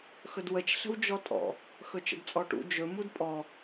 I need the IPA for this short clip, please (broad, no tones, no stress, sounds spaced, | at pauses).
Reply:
x ɵ d w ə t͡ʃ ɬ ə̤ w d͡ʒ ɔ tʼ ɔ̰ | x ɵ t͡ʃ ə̰ d t͡sʼ ɔ ʈ ṵ d͡ʒ ɵ m u d pʼ ɔ